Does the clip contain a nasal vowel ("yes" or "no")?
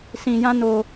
yes